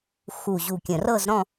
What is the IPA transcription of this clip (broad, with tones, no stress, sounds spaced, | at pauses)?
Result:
x u˨˩ ʑ u˨˩ kʲ ə̃˨˩ r ɤ˥˧ z ɾ ɔ̃˥˧